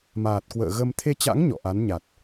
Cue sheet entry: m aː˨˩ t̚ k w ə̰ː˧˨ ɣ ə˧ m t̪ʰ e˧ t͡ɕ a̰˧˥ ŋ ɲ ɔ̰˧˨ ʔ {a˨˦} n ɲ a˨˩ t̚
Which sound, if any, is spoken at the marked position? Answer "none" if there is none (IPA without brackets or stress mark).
a˨˦